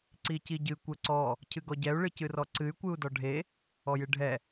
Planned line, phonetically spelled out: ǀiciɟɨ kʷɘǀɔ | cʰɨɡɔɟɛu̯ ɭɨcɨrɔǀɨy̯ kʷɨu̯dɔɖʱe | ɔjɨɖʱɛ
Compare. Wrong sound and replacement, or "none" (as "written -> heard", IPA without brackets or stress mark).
none